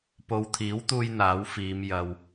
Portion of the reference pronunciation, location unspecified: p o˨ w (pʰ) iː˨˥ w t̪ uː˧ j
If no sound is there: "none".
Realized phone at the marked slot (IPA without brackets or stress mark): t̪ʰ